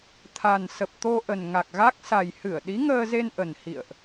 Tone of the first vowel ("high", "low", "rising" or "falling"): low